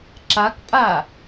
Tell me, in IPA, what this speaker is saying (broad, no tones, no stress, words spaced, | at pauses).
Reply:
ǁakpʼa